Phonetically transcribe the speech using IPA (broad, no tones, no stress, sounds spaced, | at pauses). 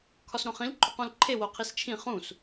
kʰ ɒ s ɾ õ χ ĩ l ǃʼ o q ũ l ǃʰ e w o qʰ i s t͡ʃʰ ĩ χ ũ s